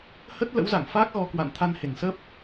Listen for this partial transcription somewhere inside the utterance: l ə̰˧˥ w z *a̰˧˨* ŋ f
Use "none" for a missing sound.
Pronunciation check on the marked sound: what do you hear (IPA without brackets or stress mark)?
a̰˧˨